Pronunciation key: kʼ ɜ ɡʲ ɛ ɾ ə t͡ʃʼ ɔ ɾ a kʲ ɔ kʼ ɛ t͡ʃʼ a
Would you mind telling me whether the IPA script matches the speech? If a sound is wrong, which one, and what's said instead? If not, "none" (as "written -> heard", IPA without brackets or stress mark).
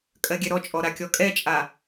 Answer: ə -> ɔ